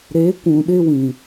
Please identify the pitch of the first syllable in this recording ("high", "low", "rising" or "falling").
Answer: rising